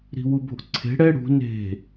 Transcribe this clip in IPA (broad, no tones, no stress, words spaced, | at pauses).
ɾi̤wubo̤ʔǀʰe̤ ɽɛ ɽṳ ne̤